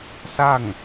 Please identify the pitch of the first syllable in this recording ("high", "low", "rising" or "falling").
falling